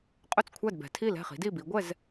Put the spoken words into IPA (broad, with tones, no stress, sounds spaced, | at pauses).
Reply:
qʼ ɵ˥˩ t͡s kʷʰ æ˥˩ d b ɛ̤˩˧ tʰ i˥˩ l ɛ̤˥˩ χ i̤˩˥ d i˥˩ b i˩˥ ɡʷ ɛ˥˩ z